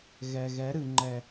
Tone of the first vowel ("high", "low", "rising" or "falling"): low